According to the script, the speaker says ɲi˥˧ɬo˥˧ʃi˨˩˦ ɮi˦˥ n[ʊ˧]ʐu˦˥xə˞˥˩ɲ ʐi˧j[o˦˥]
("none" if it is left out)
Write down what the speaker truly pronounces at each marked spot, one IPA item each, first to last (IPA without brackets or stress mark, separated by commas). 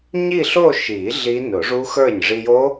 ʊ˨˩˦, o˦˥